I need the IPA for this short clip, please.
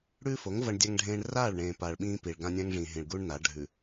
ɽ ʉː˦ f o˨˦ ŋ v ɐ˦ ɳ dʲ a˦ ŋ ɖʱ ẽː˦ ɳ r aː˦˨ ɭ ɳ ẽː˨ p aː˨ ɭ ɓ ĩː˦ p i˨ ɭ ɡ ã˦ nʲ ã˦ ŋ ʐ ĩ˨ ɦ ĩ˨ ɭ ɡ u˦ ɳ n a˨˦ ɖʱ ʉ˨

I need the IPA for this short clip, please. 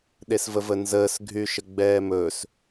ɗ e s v ə v ə n z əː s ɡʱ y ʃ ə ɡ͡b ɛː m ɵː s

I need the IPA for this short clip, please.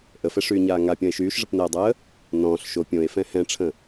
ʔ ə f ɛ ʂ yː ɲ aː ŋ a pʲ ɔ̃ e̯ ʃ yː ʃ ʐ ə p n ɛː dˤ əː | n ɔ̃ː ɬ ʃ o pʲ õ e̯ f ɛ̃ h ɛ̃ ʈ͡ʂʰ ə̃

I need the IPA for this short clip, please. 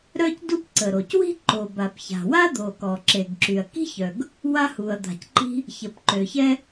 ɾ œ˥ c d u˥ p ǀ ə˩ ɾ o˩ c w i̤˥ ǃ o˩ b a˩ p ç a̤˩ w a˥ d̪ o˩ k ɔ˩ ǁ e˩ ɡ ǁ y˩ ɐ̯ k i̤˥ ç œ˩ ɡ | w a˥ h u˩ ɐ̯ d̪ a̤˩ c ǃ i̤˥ | ç ə˩ p ǃ ø˩ ç ɛ˥

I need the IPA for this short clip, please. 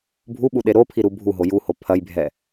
bʱ u ɓ u ɗ e ɾ o pʰ i ɾ u bʱ u ɦ o j u h o pʰ ɐ j bʱ ɛ

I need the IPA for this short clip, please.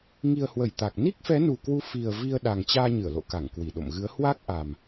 ŋ i˨˩ ə̯ h w ə˧˩ j t̪ a˨˩ k̚ n i˦˥ k̚ f ɛ˨˦ n u˨˩ k w u˨˦ f i˨˩ ə̯ v i˧ ə̯ ɗ a˨˩ ŋ t͡ɕ aː˧ ɲ ɨ˧˩ ə̯ l o̰˧˨ k a˧˩ ŋ k w i˧˩ ɗ o̰˧˨ m ɣ ɨ˨˦ ə̯ h w a˦˥ k̚ ʔ a˨˩ m

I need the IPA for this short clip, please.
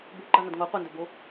b u ɡ͡ǃ a n ɐ d ŋ o qʷ ɨ n d ɵ b o

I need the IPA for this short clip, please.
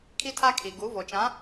kʰ i˦ tʰ a˦ kʰ i˨ ɡ u˨˦ v o˨ t͡ʃ ã˨˦

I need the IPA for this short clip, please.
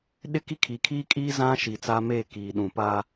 ɗ ɪ˦ k i˦ kʰ i˨ kʰ iː˦ kʼ iː˦ z ã˦ ʃ i˨ t͡s aː˦ m eː˦˨ k iː˨ ɗ ũ˨ p a˦

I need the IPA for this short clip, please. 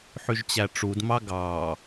ħ y ʒ t͡ɕ æ ʈ͡ʂ u d m ɑ ɡ ɑː

